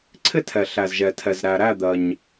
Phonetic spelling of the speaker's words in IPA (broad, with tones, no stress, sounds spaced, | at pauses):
ǀʰ ɪ˥˩ tʰ ɛ˩ ɬ æ˩ z ʒ ɛ˩ tʰ ɛ˩ z ɾ æ˩ ɾ æ˥˩ d̪ ɜ˩ ɲ